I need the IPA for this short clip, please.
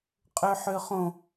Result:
qʼøħøχõ

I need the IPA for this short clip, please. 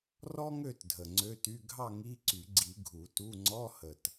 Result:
rɔ˥ŋø˥˨tdʱə˨˩ ŋ͡ǀø˧˥˧ty˧˥˧ ɡʱɑ˥˨ŋi˧˥˧ǀy˨˩˦ɡ͡ǀi˨˩˦ ɡʱu˨˩˦tu˧˥˧ ŋ͡ǀɔ˧˥˧hə˨˩t

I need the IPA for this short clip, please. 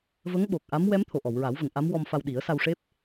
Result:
və˧˥ŋɓo˨˩k̚ʔa˧˥m wɛ˧˥mt̪ʰo˨˩ ʔɔ˨˩˨wɹa˨˩˦wvə˨˩˨ŋ ʔa˧˥m wɔ˧mfa˧w ɗi˨˩˦ə̯sa˧wʂe˦˥p̚

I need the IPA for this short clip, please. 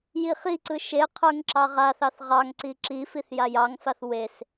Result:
jiχiǀɯ ʃe qʰə˞ŋǁɑʁaθɑθ ʁɑŋǀi ǁifiθ jajɑŋfaθ wes

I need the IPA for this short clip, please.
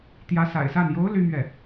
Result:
t̪jä˧˥ sa̰˨˩ɪ̯sa˥˩n jo˧˥ʊ̯ ly˥mɥɛ˥˩

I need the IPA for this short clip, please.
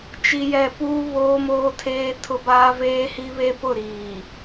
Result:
t͡ʃi˦jɛ˦˨ puː˦βoː˦moː˦tʰeː˦ tʰʊ˦baː˦ veː˦hi˦βe˦ pʊ˦˨ɾiː˨

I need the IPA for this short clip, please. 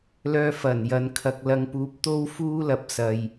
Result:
lœː˧ fɐ˨˩n jɐ˨nkʰɐ˨k̚lɐ˨˧ŋpuː˨˥p̚ t̪o˥wfuː˥lɐ˨p̚ sɐ˨j

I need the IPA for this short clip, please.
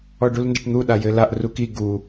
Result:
ɔɖulndɘʈn̪u ɗajɘlaʔ ruki ɡu

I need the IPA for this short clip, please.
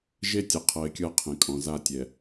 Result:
ʒe˦tʲɛ˨ qʰɤ˨ɪ̯kʲɤ˦ qʰẽ˨kʼɔ̃˨ za˦tʲɛ˨

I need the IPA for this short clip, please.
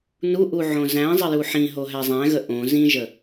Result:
nuʔu ʕõzæ̃zˤə juħĩɦo ɦæzˤæ̃ɣə ʔõ zĩʒə

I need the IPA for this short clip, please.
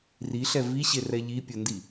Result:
riɬɛ viɕerɛ ʎipʲʊndi

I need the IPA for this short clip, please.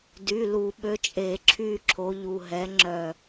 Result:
dy˩˧˩ lu˧˩˧ɓø˨˥t͡ʃʼe˧˩˧ ǁʰy˦˨ǁʰo˨˥ ʎu˩˧˩ɦɛ˨˥ŋ͡ǁœ˦˨

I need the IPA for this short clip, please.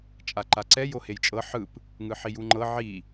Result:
t͡ʃʼaǃaǀɛ johejt͡ʃʼɤ ħɯp | ŋɯħijuŋ͡ǃɤ ʕi

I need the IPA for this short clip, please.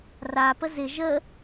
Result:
rapə zɪ ʒə

